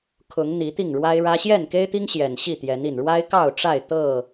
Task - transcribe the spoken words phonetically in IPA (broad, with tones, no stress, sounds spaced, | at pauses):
kʰ ʊ˨˦ ŋ n̪ i˨˦ t̪ i˥˨ ŋ ɻ w a˦ ɪ̯ ɻ ä˦ ɕ j ɛ˥˨ n k e˦ ɪ̯ t̪ i˦ ŋ ɕ j ɛ˨˩ n ɕ i˥˨ t̪ j ɛ˨˦ n i˨˩ n ɻ w a˦ ɪ̯ k ɑ˥˨ ʊ̯ ʈ͡ʂ a˥˨ ɪ̯ t̪ ɤ˥˨